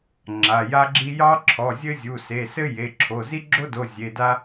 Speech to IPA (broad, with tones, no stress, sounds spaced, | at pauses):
ŋ͡ǁ a˩˧˩ j a˦ ɡ͡ǁ i˦ j ɑ˦ ǁʰ ɔ˩˧˩ zʲ ɘ˦ zʲ u˩˧˩ s e˩˧˩ s ɘ˦ j e˩˧˩ ǁʰ o˩˧˩ z i˦ ɡ͡ǁ o˦ d o˩˧˩ zʲ e˩˧˩ d a˦